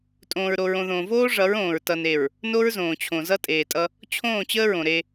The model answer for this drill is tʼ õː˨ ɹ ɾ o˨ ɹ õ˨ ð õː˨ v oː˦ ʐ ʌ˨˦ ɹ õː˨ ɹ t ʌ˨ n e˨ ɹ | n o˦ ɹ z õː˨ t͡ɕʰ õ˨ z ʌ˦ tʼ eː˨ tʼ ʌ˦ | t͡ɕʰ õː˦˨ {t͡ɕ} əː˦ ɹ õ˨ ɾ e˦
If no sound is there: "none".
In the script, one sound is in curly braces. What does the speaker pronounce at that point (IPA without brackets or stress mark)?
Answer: t͡ɕ